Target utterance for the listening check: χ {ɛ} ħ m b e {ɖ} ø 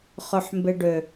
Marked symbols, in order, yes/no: no, yes

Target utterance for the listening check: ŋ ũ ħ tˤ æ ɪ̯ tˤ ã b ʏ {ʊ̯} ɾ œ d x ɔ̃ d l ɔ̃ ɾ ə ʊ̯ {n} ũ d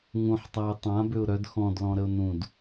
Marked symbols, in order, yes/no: yes, yes

